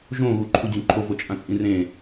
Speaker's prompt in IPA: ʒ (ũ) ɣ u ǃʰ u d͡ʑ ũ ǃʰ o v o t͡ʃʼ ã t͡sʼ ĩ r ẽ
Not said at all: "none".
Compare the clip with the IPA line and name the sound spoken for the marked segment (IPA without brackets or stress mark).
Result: õ